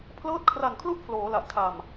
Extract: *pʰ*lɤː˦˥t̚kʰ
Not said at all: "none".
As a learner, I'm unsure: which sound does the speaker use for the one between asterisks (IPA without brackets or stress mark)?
pʰ